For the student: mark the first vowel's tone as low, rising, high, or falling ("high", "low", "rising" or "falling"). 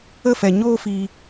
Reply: falling